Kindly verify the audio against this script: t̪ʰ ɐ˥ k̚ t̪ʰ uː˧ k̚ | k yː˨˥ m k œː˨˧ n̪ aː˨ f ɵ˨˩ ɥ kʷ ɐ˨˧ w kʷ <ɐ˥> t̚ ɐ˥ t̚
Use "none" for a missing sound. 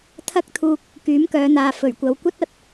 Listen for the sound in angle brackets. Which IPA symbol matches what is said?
ɐ˥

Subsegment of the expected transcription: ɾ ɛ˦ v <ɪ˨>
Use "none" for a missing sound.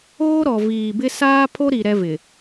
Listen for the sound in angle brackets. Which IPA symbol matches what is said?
ɪ˨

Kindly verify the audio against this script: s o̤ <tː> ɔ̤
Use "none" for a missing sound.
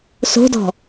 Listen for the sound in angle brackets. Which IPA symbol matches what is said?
d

